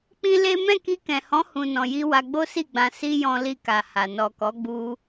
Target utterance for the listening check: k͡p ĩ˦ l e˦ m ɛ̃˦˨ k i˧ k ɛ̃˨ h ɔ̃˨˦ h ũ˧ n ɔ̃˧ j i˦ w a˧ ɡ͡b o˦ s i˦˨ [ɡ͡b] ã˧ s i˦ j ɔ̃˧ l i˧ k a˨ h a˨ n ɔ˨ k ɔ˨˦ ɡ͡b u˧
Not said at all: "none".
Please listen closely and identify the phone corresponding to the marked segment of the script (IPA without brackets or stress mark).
ɡ͡b